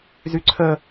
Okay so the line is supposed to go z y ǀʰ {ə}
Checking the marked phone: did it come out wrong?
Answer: no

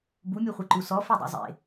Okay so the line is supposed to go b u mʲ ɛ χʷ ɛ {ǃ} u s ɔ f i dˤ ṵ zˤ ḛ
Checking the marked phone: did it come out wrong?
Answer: no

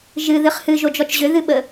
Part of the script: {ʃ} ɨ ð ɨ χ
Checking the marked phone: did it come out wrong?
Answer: yes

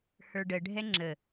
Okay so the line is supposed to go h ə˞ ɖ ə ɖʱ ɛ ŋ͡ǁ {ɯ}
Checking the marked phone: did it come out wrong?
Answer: yes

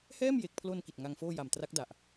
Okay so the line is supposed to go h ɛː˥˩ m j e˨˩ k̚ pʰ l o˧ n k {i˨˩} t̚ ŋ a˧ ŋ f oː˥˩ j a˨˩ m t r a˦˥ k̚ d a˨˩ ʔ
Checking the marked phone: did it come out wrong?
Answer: no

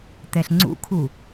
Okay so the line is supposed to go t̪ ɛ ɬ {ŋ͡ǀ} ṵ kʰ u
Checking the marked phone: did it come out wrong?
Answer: no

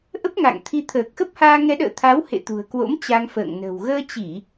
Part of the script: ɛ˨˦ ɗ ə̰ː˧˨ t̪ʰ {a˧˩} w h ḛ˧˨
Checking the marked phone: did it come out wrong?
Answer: yes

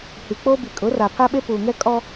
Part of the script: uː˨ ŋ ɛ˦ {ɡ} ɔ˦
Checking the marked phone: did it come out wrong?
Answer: yes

